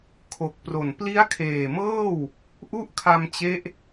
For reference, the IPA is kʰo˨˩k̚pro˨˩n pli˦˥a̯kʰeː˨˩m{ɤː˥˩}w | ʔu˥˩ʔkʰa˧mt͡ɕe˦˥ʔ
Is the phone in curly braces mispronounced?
no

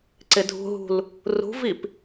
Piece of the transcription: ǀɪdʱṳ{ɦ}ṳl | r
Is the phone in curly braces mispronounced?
no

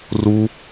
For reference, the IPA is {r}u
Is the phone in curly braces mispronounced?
no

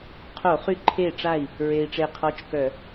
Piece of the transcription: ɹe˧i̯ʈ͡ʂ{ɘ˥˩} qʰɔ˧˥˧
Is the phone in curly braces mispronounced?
yes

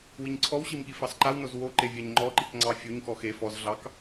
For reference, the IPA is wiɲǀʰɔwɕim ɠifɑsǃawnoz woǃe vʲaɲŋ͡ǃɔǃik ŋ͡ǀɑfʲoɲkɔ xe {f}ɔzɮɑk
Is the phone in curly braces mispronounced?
no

